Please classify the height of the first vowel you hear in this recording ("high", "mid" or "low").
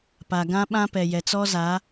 low